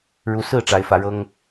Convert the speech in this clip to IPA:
ɻu˨˦sɹ̩˥˨ ʈ͡ʂa˨˦ɪ̯fä˨˦ɻɤ˦ŋ

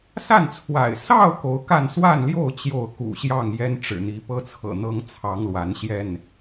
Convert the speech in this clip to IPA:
sa˥˨nt͡sʰwa̰˨˩ɪ̯ sɑ˥˨ʊ̯ ko˨˦ʊ̯ka˥˨n swa˥˨nljo˥˨ʊ̯ t͡ɕjo˥˨ʊ̯kṵ˨˩ɕjɑ˥˨ŋ jɛ˦nʈ͡ʂɻ̩˨˩n̪i˨˦ pɤ˦t͡sʰɤ̰˨˩ n̪ɤ˦ŋ t͡sʰɑ˨˦ŋlwa˨˦nɕjɛ˥˨n

